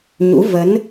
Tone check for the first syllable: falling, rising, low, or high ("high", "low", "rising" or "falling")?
rising